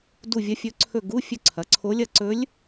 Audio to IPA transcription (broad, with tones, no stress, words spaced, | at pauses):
du˦˨ vʲɐ˧˥fʲɵ˧˥ǀʰɵ˦˨ ɡu˧˥˧fʲɵ˦˨ǀʰɐ˩˥ǀʰo˧˥ lʲɐ˦˨ǀɵ˧˥lʲ